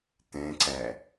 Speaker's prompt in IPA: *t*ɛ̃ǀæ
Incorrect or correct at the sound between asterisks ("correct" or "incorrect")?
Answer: correct